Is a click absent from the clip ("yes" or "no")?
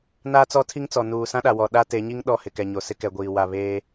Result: yes